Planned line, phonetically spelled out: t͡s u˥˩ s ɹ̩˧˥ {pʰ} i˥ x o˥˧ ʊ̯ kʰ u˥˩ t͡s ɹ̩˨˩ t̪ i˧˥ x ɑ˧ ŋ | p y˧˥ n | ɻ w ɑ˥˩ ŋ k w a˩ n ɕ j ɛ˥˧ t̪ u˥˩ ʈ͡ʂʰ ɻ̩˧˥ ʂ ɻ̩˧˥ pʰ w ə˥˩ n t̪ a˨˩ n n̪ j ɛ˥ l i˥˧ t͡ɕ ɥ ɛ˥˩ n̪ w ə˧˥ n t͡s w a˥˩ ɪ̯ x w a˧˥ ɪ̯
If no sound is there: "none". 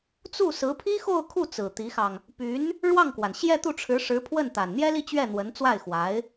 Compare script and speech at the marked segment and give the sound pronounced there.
pʰ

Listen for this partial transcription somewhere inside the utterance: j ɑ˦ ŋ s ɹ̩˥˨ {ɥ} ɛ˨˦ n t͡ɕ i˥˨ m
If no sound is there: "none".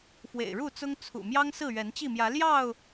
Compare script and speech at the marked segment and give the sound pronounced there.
ɥ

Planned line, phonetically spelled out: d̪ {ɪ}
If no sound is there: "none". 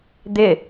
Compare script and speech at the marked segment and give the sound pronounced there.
ɪ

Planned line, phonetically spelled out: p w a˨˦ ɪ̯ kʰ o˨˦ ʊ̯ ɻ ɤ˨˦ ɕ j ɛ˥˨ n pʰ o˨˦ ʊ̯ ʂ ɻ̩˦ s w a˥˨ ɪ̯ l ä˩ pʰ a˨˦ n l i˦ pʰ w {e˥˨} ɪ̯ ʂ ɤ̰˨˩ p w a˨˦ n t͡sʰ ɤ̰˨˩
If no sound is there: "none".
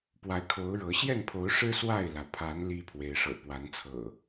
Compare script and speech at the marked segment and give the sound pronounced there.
e˨˦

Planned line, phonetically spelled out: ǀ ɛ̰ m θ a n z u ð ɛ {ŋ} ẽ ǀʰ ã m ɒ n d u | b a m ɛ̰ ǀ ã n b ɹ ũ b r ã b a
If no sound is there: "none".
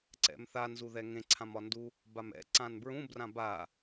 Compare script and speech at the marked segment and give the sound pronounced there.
ŋ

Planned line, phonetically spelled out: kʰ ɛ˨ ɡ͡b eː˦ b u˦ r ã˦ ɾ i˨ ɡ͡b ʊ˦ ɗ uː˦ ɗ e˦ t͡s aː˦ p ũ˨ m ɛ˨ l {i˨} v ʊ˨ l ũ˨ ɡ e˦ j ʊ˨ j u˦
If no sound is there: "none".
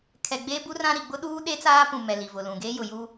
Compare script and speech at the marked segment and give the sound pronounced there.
i˨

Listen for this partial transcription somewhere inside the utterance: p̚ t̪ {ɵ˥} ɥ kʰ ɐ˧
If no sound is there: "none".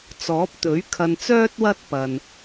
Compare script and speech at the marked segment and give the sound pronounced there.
ɵ˨˥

